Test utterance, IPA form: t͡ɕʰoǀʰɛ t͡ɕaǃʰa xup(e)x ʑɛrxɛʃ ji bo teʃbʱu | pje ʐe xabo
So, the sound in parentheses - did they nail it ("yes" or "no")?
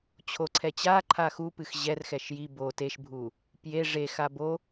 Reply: no